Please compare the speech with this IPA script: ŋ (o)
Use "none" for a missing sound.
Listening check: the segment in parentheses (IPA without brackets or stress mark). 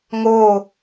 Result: o